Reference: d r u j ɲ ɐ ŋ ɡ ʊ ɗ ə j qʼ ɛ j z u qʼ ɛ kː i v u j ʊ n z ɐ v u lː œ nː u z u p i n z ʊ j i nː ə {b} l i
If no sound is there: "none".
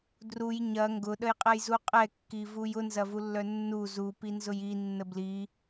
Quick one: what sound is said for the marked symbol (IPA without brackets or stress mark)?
b